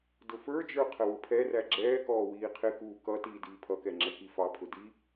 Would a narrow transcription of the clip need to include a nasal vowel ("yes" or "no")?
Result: no